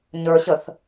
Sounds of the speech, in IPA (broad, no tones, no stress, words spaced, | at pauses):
ɲə˞ ɕəθ